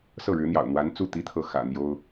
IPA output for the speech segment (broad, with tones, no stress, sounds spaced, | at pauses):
s ɤ˥˩ ɻ ɻ̩˧˥ n̪ j ɑ̰˨˩ ʊ̯ n̪ w a˧˥ n t͡s u˥˩ t̪ i˥ t̪ʰ ɤ˥˩ x ä̰˨˩ n̪ j o˥ ʊ̯